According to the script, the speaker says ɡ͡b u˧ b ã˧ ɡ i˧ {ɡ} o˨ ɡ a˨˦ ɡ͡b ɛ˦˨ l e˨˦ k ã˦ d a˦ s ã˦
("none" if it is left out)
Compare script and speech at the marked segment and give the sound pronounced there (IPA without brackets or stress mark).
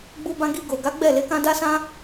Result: ɡ